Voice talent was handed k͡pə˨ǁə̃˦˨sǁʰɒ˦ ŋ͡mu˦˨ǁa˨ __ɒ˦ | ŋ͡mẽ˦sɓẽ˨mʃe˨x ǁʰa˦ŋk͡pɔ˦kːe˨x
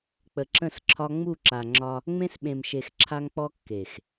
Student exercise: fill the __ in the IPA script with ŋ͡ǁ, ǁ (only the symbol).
ŋ͡ǁ